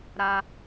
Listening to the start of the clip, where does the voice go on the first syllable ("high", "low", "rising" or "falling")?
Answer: high